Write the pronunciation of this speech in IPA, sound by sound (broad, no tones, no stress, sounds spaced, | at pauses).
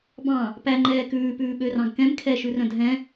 b ɑ̃ | p æ ŋ͡ǃ ɛː k ʉː p ʉː ɓ ø r ɑ̃ ɡ k ɛ̃ m kʰ ɛ ʃ ʉ r œ̃ dʱ ɛ̃